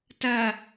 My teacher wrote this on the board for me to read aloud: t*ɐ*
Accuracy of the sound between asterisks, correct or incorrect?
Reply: correct